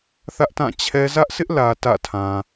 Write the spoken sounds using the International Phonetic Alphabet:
θ ä˦ ʔ t ã˦˨ t͡ɕʰ ɛ˦ z ä˦ ʔ s ɪ˦ ʔ l ä˨ t ä̰˦˨ tʰ ã˨

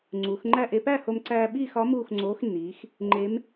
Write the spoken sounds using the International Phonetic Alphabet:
ŋ͡ǀ u˩˧ x ŋ͡ǃ æ˥˧ ʔ e˧ p æ˥˧ h o˧ m ǀ æː˧ ɓ iː˥˧ x ɒ˧˥ m uː˥˧ x ŋ͡ǀ oː˧˥ x nː iː˩˧ x | ŋ͡ǃ e˧˥ m

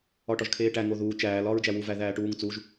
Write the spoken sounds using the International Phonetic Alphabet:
ɒ ʈ ɒ ʒ kʰ eː ʈ æ ŋ o ð uː t͡ʃ æː l ɒː ɹ d͡ʒ æ w u v æ ð æː ʈ uː ŋ t͡s u ʒ

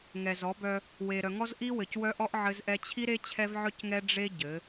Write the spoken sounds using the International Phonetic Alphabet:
ŋ ɛ˨ z ɔ˨˦ b œ˦ | w e˨ ɾ œ˨ ŋ ɔ˦ z ʔ i˦ w ɘ˨ c w œ˦ ʔ ɔ˦ ʔ ʕ ɘ˦ z ʔ ɛ˦ t͡ɕʰ i˦ ɾ e˦ t͡ɕʰ ɛ˦ v ʕ œ˦ c ŋ ɛ˦ ɖ͡ʐ e˦ ɟ ɘ˨˦

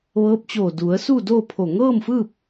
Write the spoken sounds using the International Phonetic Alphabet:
ʋ ɤː˧˥ p̚ t͡ɕ oː˧˩ d u˩˧ ə̯ s u˥˨ d oː˥˨ pʰ o˧˩ ŋ ɤː˥˨ m f ɯː˥˨ p̚

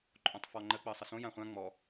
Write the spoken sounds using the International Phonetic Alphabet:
ǃʼ õ tˤ f ɔ ŋ͡ǃ ə k͡p əː sˤ ə s õ j ã χʷ ã ŋ͡m ɔ

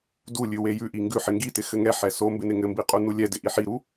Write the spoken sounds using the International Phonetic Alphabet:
d u lʲ ʉ w e j ʉ ʔ i ŋ ɡ ʉ ħ ɪ ŋ ɡ i t ɪ x ɘ ŋ ɛ ħ ɛ s o m b ɪ n ɪ ŋ ɘ m b i qʼ u n u lʲ ɛ d ɪ ʔ i ħ i ɾ u

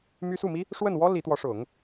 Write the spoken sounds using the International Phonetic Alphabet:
m y˥ s u˥˩ m i˥ | ʂ w ə˥˩ n w ɔ˥ l i˧˥ t̪ w ɔ˧˥ ʂ ʊ˨˩˦ ŋ

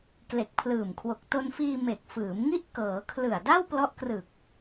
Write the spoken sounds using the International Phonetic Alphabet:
k l e˨˩ k̚ pʰ l ɯː˨˩ m kʰ w o˨˩ k̚ t o˧ n f iː˧ m e˨˩ k̚ f ɯː˩˦ m ŋ i˥˩ ʔ k ɤː˩˦ kʰ l ɯ˨˩ a̯ d a˥˩ w p l ɔ˦˥ ʔ k r ɯ˨˩ k̚

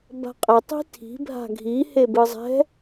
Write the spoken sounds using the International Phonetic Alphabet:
b a̤ qʼ ɛ tˤ i̤ tʰ i̤ bʱ a̤ ɡʱ i h e b ɯ zˤ ɛ̤

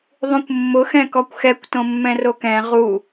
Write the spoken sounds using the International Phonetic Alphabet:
ðˤ ũ kʷ mː ʊ x ɛ̃ k ɔ kʷ x ɛ kʷ t õ mː ɛ̃ r o k ɛ̃ ʁ u

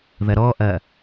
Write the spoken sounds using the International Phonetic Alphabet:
ð ɐ ɾ ɔ ʔ ɐ

